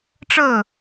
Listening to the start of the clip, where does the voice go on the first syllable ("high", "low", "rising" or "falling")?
falling